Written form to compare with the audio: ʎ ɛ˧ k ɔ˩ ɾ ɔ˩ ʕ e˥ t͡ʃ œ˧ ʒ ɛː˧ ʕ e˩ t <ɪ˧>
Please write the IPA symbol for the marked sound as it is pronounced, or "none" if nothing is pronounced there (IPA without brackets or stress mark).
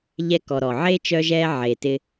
ɪ˧